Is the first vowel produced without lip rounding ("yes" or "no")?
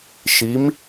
yes